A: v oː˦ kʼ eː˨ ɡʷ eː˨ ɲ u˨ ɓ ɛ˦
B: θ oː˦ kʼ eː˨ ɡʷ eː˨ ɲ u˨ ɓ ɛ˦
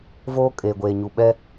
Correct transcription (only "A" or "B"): A